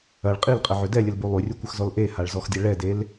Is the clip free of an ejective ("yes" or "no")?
no